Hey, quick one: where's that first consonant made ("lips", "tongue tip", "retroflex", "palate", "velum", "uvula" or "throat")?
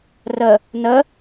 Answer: tongue tip